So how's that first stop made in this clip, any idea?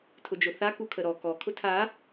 aspirated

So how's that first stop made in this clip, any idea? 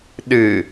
implosive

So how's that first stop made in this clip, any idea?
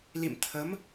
aspirated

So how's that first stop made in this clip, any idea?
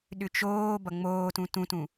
implosive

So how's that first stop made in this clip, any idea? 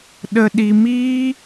implosive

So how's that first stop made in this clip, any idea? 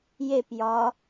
plain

